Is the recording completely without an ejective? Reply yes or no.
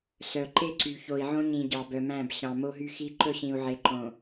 yes